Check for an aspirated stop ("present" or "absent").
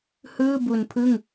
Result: present